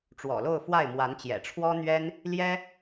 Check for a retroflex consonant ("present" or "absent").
present